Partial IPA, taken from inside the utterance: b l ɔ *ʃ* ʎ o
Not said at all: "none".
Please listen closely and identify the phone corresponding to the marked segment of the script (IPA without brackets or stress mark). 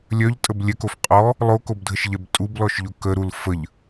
ʃ